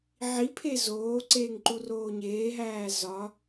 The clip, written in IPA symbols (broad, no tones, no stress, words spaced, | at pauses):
ʕi pʰezoːǀeːŋ ǃuroːɲeːɦæː zɒ